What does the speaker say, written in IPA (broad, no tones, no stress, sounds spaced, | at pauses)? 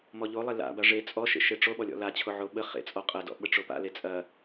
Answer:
m ɔ ʎ o lˠ e l a̰ b a ʐ e t͡sʼ ɔ ʃ ḛ ʃ e ʈ͡ʂ o ɓ ɔ lʲ ɔ̰ l a t͡ɕʰ o ʕ o ɓ ə χ ḛ t͡sʼ ɔ qʼ ɐ d ɔ̰ ɓ ə ʈ͡ʂ o p a̰ l e t͡sʼ ɐ